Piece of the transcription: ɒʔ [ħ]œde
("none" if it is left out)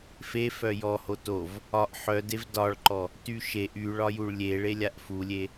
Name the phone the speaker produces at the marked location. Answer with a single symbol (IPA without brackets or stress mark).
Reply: ħ